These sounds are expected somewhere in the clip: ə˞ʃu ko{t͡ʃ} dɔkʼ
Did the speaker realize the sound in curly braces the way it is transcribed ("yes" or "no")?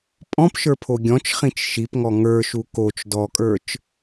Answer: yes